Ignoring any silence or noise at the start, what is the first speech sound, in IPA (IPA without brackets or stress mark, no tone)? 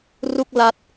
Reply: r